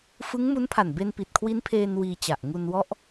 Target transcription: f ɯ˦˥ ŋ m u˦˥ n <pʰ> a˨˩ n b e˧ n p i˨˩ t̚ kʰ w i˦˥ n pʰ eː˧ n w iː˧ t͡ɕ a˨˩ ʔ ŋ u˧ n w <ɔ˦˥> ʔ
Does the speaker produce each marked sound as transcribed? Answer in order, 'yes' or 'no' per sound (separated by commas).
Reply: yes, yes